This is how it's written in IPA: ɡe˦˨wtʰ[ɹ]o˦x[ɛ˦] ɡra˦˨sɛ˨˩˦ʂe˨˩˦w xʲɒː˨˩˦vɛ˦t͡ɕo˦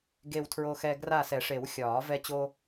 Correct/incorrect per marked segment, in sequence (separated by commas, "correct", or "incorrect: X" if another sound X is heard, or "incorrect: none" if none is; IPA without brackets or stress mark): correct, correct